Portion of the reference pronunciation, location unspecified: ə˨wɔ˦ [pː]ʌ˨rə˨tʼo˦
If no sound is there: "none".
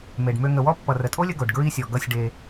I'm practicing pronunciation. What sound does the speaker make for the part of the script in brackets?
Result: pː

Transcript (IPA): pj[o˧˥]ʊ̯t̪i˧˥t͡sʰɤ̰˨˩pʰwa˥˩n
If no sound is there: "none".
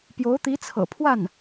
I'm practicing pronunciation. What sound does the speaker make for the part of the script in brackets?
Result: o˧˥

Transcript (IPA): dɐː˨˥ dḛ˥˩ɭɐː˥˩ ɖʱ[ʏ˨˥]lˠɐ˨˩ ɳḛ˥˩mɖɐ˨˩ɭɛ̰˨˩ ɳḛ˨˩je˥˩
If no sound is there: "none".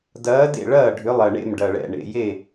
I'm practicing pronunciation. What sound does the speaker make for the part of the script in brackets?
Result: ʏ˨˥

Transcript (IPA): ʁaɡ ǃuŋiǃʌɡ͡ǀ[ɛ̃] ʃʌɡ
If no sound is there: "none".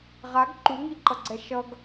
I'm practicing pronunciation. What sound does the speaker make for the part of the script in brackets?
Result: ɛ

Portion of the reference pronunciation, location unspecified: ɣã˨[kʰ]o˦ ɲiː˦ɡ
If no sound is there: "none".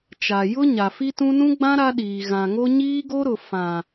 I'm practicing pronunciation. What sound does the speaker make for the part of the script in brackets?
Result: ŋ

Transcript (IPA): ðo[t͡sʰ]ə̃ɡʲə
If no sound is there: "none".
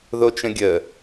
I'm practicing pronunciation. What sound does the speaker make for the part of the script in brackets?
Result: t͡ʃ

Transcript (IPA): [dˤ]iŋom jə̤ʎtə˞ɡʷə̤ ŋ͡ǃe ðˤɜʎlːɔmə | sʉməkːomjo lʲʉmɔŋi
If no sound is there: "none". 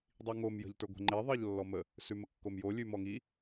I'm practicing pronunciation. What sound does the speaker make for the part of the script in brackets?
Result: dˤ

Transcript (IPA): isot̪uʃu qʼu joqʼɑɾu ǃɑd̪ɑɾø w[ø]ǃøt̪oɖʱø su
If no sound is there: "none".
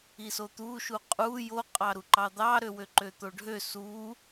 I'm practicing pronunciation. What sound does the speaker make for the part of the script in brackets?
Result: ø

